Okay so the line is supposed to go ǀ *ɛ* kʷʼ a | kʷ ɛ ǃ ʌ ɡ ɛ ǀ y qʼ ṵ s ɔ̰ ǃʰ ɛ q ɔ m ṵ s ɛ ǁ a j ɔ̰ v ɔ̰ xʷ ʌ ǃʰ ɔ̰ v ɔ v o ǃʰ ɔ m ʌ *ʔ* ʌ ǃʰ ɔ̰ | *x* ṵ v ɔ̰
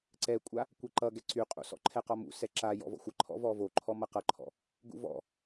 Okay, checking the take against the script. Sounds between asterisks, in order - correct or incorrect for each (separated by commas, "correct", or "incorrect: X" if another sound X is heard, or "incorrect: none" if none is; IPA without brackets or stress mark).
correct, incorrect: q, incorrect: ɡ